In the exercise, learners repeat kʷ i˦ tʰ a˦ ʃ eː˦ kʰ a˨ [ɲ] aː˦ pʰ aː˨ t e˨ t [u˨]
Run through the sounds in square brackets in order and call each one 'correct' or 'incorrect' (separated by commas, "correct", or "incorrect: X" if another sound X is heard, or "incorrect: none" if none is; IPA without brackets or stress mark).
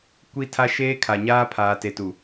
correct, correct